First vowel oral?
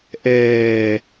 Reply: yes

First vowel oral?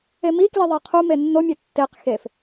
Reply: yes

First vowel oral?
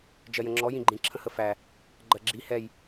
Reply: yes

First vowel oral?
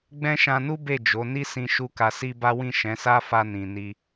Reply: no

